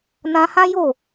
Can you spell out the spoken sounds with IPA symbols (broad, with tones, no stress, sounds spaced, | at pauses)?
n ã˧ h ã˦ j o˦˨